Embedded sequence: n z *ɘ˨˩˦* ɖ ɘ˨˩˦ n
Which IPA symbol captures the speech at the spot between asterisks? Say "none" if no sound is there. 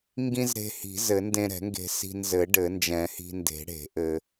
ɘ˨˩˦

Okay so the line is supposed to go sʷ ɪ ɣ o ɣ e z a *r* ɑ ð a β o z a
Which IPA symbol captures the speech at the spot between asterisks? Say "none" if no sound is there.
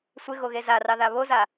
r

